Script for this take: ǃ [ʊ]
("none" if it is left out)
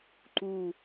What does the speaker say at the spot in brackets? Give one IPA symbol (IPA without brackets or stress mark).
u